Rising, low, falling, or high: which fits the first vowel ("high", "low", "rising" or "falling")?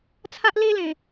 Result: high